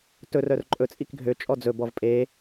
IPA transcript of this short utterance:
t ɵ r œ r ǃʼ ɵ t͡sʼ i k ɡʱ ø t͡ʃʼ ɔ d͡z ɵ b ɔ v pʼ e

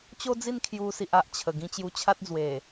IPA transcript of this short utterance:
t͡ɕ o˦ d͡z i˥˧ n kʰ j u˧ s i˨ ʔ a˨ ʔ t͡ɕʰ ə˨˩ ɡ ĩ˧ t͡ɕ j u˧ t͡ɕʰ a˦ t̚ d͡z w e˨˩

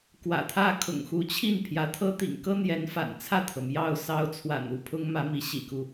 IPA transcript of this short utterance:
k w ä̰˨˩ t̪ʰ ä˥˩ kʰ ʊ̰˨˩ ŋ x u˧˥ t͡ɕʰ i˥˩ n pʰ j ä˧˥ t̪ʰ ɤ˥ t̪ ḭ˨˩ ŋ k ɤ˥ n̪ j ɛ˧˥ n f a̰˨˩ n t͡sʰ ä˥˩ t̪ʰ ɤ˩ m j ɑ˥˩ ʊ̯ s ɑ˥ ʊ̯ t͡sʰ w a̰˨˩ n u˥˩ pʰ ʊ˥ ŋ m ä˧˥ m i˧˥ ɕ ḭ˨˩ k u˧˥

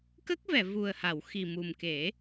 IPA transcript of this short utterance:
k ə˦˥ k̚ v ɛ˨˩˨ v u˨˩ ə̯ h a˨˩˨ w x i˨˩ m u˨˩ m k e˨˩˦

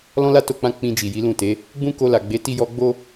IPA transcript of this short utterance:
l ɔ̃˦ l a˦ t o˧ k͡p ã˧ k͡p ĩ˧ d͡ʒ i˨ j i˨˦ l ũ˦˨ t e˨˦ | ɡ͡b ũ˦ k o˧ l a˨ ɡ͡b e˨˦ t i˦ j ɔ˦ ɡ͡b o˦

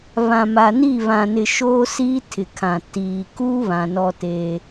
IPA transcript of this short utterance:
β ã˨ m a˨ n i˦˨ β ã˨ n ɪ˨ ʃ oː˦ s iː˦ tʰ ɪ˨ kʰ ã˨ t iː˨ k u˦ β ã˨ n ɔ˦ t e˦

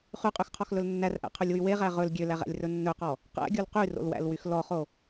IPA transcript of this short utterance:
χ ʉ qʼ y x qʰ ɔ x l ɵ l nː æ r ʔ æ̰ qʰ ɵ lʲ w y w e ʁ æ ʁ ɵ l ɡʲ ø l æ ʁ æ̰ lʲ r ɵ nː ɵ q ɔ | q æ̰ ɡʲ o l q y r o̰ l w æ̰ l w y x l ɔ χ o

